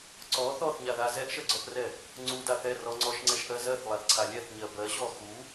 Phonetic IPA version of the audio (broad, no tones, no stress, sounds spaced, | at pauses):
ǀ ɔ θ ɔ θ ɲ a ð a z ɛ ʔ ʃ ɜ ɡ͡ǀ ɔ θ r ɛ | ŋ͡ǀ u d a θ ɛ r ɔ ŋ͡ǀ ɔ ʃ ŋ͡ǀ ɛ ʃ ʔ ɜ z ɜ θ lˠ a θ ǀʰ a lʲ ɛ θ ɲ ɜ b ɜ ɕ ɔ x u